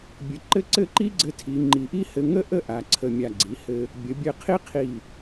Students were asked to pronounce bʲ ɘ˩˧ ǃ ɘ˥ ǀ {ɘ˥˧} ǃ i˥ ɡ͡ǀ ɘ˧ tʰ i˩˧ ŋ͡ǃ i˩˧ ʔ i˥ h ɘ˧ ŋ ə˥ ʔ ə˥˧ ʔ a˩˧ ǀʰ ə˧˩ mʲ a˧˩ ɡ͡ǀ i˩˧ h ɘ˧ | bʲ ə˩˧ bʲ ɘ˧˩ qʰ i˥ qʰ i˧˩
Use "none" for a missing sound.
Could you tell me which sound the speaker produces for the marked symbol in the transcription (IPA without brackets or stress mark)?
ɘ˥˧